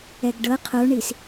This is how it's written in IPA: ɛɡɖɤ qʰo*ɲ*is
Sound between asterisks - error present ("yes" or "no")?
yes